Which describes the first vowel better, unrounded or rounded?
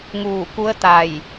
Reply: rounded